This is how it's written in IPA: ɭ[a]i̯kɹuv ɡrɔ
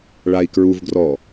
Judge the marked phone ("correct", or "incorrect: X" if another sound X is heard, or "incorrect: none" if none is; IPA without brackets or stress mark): correct